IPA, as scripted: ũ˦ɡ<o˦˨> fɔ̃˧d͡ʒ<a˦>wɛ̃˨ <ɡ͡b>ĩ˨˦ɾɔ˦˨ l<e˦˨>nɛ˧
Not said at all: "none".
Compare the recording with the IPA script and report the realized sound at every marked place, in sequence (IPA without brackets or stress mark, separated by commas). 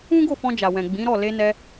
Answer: o˦˨, a˨, ɡ͡b, e˧